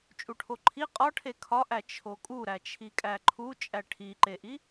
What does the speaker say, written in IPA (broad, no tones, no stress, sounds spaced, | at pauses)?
t͡ʃʼ u ʈʰ o ǃʰ i qʼ ɒ ʈʰ e kʰ ɒ ʔ æ t͡ʃʰ o kʼ u ɾ æ t͡ʃʰ i kʼ æ ǃʰ u t͡ʃʼ æ ʈʰ i ǃ e ʔ i